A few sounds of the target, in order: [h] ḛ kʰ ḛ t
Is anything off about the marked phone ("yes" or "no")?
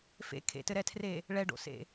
yes